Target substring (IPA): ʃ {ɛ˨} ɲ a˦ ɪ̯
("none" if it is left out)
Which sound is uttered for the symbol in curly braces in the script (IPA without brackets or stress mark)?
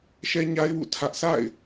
ɛ˦